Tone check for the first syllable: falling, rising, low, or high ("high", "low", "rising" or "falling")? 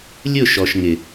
falling